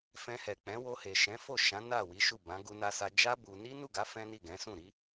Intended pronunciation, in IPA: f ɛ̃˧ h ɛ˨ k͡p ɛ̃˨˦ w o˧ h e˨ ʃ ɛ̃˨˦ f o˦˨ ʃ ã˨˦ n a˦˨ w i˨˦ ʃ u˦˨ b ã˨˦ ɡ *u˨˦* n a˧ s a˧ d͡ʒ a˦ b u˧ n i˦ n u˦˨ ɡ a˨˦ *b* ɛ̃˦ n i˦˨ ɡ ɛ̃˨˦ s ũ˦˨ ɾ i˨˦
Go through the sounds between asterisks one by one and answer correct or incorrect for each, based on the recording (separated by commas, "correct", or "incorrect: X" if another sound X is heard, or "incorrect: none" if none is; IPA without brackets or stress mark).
incorrect: u˧, incorrect: f